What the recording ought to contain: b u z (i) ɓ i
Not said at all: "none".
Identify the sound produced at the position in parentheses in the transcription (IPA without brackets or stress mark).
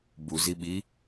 i